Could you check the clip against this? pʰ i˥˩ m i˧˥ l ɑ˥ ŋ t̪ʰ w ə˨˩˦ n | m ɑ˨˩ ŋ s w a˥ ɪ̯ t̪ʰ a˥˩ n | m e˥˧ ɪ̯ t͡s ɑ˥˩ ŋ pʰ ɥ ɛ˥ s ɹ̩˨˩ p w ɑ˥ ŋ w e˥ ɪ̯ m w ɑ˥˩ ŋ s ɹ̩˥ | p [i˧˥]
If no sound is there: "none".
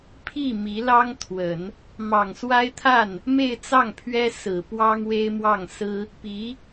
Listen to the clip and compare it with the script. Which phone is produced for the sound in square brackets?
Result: i˧˥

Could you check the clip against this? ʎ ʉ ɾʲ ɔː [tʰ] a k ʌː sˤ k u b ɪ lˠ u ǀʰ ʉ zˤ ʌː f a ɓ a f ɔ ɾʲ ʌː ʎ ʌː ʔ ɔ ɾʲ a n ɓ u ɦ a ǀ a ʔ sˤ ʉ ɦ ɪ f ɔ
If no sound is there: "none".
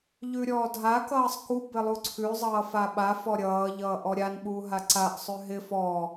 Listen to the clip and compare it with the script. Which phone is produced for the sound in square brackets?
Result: dʱ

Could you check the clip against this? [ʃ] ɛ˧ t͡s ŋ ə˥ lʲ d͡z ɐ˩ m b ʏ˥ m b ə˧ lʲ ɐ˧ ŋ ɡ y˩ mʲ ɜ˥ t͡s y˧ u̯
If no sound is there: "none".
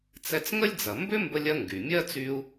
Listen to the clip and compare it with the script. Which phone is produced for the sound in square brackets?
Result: t͡s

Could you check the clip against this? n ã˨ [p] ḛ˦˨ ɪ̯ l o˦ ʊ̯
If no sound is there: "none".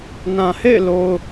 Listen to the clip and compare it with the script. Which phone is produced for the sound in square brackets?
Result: h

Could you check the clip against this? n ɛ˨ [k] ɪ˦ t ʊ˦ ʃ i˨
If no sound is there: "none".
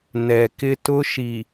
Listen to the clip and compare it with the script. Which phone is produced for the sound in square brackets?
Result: k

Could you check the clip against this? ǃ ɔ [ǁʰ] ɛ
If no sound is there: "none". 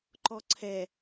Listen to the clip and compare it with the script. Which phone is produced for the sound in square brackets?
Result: ǀʰ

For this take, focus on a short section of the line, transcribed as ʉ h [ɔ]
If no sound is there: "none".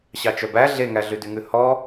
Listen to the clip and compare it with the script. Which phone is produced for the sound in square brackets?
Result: ɔ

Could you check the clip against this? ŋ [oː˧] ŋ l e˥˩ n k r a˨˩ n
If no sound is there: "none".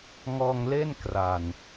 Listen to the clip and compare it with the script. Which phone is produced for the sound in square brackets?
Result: ɔː˧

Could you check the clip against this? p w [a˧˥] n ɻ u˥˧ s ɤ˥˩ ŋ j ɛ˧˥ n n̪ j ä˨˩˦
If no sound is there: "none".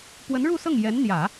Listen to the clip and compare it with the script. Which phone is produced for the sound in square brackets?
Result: ə˧˥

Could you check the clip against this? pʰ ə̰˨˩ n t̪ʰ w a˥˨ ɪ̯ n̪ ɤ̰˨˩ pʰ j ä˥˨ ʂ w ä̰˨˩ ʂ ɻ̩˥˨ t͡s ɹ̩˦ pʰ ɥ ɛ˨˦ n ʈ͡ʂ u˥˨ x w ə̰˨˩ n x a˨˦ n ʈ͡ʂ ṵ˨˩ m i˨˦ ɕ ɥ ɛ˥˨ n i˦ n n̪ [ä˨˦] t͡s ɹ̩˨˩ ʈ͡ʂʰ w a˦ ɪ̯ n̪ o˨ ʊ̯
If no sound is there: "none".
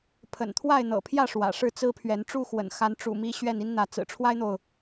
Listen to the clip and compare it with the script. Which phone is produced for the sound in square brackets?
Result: ä˨˦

